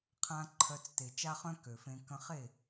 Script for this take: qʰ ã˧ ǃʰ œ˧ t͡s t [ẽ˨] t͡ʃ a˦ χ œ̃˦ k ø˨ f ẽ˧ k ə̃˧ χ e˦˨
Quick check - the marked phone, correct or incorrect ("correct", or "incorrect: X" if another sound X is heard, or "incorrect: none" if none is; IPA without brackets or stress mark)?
incorrect: e˨